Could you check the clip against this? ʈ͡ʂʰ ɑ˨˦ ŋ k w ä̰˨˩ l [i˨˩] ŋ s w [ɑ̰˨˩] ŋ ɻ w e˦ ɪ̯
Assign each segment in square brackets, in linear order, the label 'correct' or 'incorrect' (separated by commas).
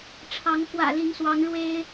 incorrect, incorrect